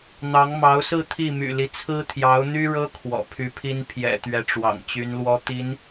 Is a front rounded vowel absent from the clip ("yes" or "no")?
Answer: no